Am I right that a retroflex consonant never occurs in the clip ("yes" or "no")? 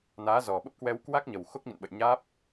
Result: yes